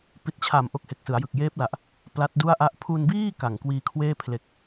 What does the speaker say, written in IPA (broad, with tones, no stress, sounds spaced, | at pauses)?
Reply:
p i˨˩ t̚ t͡ɕʰ a˨˩ m ʔ o˦˥ k̚ h e˨˩ k̚ s ɯ˩˦ a̯ j ɯ˨˩ k̚ j eː˦˥ p̚ l a˨˩ ʔ | p l a˦˥ t̚ d u˥˩ a̯ ʔ a˥˩ ʔ pʰ u˧ n b iː˥˩ k a˨˩ ŋ k w iː˧ kʰ w eː˥˩ pʰ l e˨˩ k̚